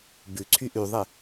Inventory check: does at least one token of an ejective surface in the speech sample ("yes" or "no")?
no